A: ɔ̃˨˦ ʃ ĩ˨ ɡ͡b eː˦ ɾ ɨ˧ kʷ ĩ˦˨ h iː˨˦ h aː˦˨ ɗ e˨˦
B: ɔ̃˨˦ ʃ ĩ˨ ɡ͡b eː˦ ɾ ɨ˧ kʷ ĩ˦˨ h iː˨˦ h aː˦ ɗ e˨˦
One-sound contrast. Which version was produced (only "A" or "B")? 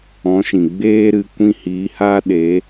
B